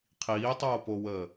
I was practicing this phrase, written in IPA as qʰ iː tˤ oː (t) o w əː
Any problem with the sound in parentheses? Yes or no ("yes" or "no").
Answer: yes